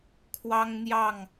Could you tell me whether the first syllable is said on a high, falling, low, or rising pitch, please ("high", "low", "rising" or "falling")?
high